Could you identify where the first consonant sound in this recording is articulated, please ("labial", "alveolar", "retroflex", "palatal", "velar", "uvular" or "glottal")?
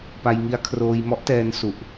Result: labial